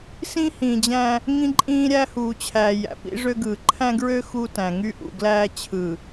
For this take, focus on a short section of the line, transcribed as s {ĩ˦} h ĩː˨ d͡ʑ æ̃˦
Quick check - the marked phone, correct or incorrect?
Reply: correct